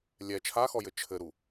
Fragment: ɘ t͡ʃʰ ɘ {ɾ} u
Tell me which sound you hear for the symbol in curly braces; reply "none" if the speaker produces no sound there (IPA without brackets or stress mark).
ɾ